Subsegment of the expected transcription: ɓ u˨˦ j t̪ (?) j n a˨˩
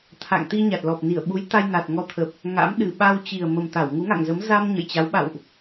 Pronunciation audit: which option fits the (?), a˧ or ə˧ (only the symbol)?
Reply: a˧